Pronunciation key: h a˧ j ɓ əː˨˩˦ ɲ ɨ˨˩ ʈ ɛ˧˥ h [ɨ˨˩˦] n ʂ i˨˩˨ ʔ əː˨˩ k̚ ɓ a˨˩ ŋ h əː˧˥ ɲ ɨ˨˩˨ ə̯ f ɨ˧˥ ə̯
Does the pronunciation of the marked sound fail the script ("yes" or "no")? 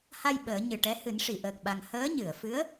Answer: no